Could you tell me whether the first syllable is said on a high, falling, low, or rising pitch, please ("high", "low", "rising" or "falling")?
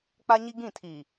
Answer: high